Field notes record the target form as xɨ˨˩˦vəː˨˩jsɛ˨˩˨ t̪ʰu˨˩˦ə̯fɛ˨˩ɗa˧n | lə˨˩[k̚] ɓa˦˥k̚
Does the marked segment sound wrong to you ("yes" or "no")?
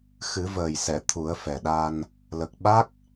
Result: no